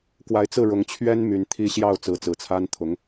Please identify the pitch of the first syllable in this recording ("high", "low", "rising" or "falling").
rising